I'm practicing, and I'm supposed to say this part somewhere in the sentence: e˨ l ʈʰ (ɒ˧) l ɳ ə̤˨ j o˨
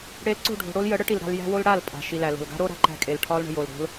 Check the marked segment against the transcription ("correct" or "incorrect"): correct